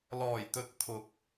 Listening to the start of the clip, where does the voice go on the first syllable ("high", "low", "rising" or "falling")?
low